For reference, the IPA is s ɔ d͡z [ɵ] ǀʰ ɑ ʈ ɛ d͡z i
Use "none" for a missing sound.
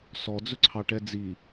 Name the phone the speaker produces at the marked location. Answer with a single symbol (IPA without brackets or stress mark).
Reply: ɵ